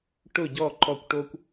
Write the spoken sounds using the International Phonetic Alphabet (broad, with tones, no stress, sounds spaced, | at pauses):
ʈ ʊ˧˩ ɟ ɔ˧˩ ǃ ɔ˧˩ kʷ ʈ o˦ kʷ